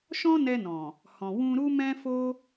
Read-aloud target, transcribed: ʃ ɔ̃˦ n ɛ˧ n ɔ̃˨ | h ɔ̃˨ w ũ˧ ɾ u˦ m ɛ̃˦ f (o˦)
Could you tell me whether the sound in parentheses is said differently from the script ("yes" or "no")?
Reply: no